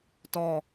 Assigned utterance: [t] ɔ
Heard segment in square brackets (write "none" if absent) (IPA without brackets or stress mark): t